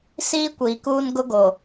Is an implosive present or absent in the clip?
absent